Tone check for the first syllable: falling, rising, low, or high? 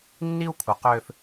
high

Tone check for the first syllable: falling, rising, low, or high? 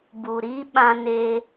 low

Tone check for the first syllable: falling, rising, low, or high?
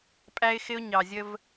high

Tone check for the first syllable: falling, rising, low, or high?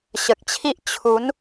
low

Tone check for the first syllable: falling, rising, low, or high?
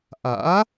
rising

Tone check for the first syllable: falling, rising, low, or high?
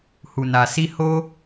low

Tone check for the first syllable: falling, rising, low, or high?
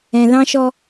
low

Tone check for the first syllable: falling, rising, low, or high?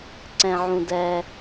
low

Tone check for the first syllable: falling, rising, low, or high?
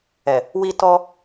low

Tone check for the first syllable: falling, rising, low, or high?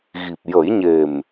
low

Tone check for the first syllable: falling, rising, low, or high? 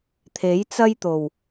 rising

